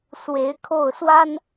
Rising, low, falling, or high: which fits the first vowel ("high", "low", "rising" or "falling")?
rising